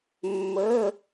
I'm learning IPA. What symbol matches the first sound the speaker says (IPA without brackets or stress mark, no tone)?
mː